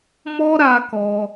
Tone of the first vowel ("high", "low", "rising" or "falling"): high